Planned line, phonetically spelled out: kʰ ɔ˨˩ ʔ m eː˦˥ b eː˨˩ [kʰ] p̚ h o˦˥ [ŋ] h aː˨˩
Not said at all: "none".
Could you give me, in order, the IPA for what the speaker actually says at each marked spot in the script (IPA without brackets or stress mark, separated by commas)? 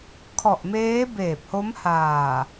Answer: none, m